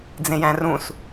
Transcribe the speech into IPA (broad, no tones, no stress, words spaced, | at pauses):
d͡zẽjæ̃rũs